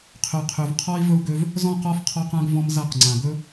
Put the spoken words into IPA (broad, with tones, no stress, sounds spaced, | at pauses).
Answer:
qʰ ø˨ qʰ ø˨ v qʰ ɔ˦ i̯ v ɵ˦ u̯ ɡ ø˦ v | z ɔ̃˦˨ q ɔ˦ f qʰ ɔ˦ q ã˦ ɡ v ɔ̃˦ m z a˦˨ q ŋ͡ǀ ã˨ ɡ ɵ˦